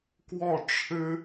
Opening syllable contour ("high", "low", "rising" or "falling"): falling